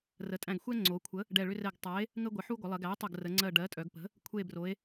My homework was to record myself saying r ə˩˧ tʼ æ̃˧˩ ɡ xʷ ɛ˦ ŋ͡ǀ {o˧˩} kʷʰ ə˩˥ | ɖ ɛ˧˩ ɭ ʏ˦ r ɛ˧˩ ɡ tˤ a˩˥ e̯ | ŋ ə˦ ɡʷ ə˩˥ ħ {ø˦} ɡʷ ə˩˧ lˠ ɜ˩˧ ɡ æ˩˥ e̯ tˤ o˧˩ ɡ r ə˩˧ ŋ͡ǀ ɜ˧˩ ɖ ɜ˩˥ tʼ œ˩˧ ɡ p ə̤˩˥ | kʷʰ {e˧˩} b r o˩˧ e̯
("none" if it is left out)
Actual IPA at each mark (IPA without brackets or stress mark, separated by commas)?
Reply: o˩˧, u˦, e˧˩